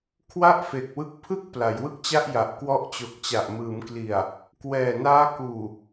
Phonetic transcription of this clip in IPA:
kʰ w a˥˩ ʔ f e˨˩ k̚ w ɯ˦˥ k̚ pʰ ɯ˥˩ k̚ p l a˩˦ j w ɯ˥˩ k̚ t͡ɕ a˥˩ ʔ j a˨˩ ʔ k w ɔ˦˥ ʔ t͡ɕ o˨˩ k̚ t͡ɕ a˨˩ ʔ m ɯː˩˦ m k l i˨˩ a̯ | k w ɛː˨˩ n aː˦˥ k uː˨˩

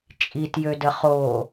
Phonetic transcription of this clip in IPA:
t͡ʃʼ i t j ø d ə χ o

